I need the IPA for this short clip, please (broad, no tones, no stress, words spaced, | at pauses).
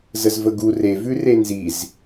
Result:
zəzvəɡu re vʉrenziz